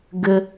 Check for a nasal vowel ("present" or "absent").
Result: absent